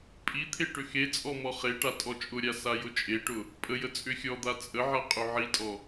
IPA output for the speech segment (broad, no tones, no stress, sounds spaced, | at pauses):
pʼ i t̪ʰ e ʈ ʏ x e t͡sʼ ɔ m ɔ χ e ʈ a tʼ ɔ t͡ʃʼ ʊ ɾʲ a s a j ʊ t͡ʃʼ e ʈ ʊ | pʼ ə j ə t͡sʼ ʏ xʲ ɔ d̪ a t͡sʼ ə ʕ a qʼ ʏ ʕ i tʼ ɔ